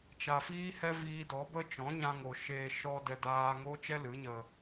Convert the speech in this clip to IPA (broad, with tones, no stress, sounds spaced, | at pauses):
t͡ʃ a˨ f iː˦ h ɛ˦ v iː˧ d ɔ˨˦ b ə˦ t͡ʃ ɔ̃˨˦ ɲ ã˧ ŋ o˨ ʃ eː˧ ʃ ɔ˦ d ɛ˧ d aː˧ ŋ oː˦ t͡ʃ ɛ˦ l ɨ˨˦ ɲ ə˧